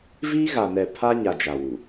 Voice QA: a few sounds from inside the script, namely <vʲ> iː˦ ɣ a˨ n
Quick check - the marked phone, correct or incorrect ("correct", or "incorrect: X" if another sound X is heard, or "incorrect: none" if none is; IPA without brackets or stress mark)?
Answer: incorrect: v